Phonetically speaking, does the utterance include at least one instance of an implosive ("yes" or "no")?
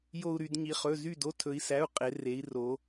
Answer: no